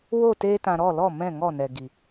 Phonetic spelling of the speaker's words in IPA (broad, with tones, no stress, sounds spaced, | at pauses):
w o˦˨ t eː˧ t ã˨ ɾ ɔ˦˨ l ɔ˦˨ m ɛ̃˦˨ ŋ ɔ˦˨ n ɛ˨ ɡ i˨